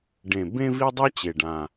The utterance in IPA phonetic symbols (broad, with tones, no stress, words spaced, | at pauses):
ɖẽ˨˩bẽ˦vi˦dˤʌ˦ t͡ɕe˨˩ɖã˨˩